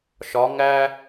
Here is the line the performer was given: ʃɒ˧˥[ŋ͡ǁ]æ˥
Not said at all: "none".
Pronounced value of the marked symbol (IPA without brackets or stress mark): ŋ